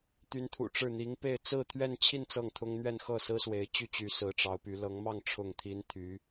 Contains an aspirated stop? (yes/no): yes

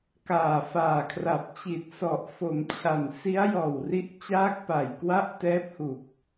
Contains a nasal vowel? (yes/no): no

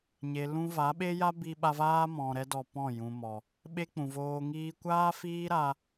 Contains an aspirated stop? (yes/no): no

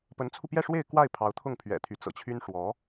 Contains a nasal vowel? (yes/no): no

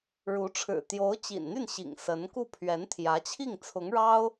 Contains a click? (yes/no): no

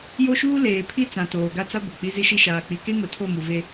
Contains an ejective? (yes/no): no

